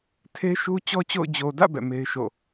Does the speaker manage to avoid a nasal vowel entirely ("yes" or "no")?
yes